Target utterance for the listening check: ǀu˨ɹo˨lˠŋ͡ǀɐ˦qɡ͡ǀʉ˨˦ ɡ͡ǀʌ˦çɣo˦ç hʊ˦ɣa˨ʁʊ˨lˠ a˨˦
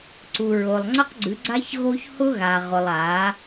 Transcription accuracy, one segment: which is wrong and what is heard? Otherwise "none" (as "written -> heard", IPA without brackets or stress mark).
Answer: ʌ˦ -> a˦